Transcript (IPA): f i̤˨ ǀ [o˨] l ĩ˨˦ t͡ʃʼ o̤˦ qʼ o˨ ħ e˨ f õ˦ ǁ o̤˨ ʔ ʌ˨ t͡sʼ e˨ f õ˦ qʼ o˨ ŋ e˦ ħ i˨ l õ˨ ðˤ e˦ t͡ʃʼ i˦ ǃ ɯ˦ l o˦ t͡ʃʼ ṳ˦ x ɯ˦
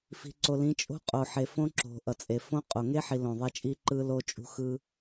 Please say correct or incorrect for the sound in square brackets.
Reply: correct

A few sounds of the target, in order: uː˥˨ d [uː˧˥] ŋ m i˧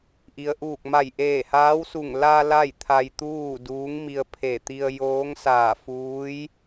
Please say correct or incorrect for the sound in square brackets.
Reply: correct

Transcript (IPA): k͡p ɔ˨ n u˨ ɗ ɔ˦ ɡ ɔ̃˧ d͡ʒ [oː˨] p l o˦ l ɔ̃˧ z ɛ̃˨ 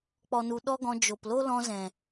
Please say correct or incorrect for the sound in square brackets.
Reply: incorrect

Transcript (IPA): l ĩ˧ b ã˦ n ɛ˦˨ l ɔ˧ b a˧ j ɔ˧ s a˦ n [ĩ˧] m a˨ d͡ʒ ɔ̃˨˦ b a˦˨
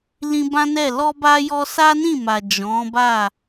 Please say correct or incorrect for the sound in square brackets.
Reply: incorrect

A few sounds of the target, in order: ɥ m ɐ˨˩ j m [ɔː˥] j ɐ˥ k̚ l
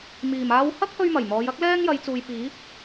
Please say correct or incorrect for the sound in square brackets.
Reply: incorrect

